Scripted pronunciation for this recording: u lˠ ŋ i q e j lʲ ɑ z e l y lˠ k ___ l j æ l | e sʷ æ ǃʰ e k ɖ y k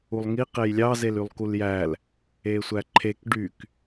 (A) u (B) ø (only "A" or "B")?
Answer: A